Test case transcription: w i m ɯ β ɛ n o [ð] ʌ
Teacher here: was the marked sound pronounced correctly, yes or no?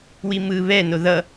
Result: yes